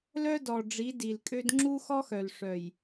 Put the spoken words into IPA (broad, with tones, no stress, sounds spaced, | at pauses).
l œ˦ d ɔ˨ ɖ͡ʐ i˨˦ d i˨ l kʼ ø˦ d ŋ͡ǁ u˦ x ɔ˦ x œ˨ l ʂ œ˨ j